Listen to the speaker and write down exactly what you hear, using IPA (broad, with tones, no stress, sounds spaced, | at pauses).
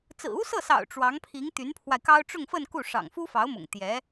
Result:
t͡s ɹ̩˨˩ u˥ s ɤ˥˩ s ɑ̰˨˩ ʊ̯ ʈ͡ʂ w ɑ˧˥ ŋ pʰ i˧˥ ŋ t̪ y˧˥ n pʰ w a˧ ɪ̯ k ɑ˥ ʊ̯ ʈ͡ʂ ʊ˥˧ ŋ f ə˥˧ n k u˥˩ ʂ ɑ̰˨˩ ŋ f u˥ f ɑ˧˥ ʊ̯ m ʊ̰˨˩ ŋ t̪ j ɛ˧˥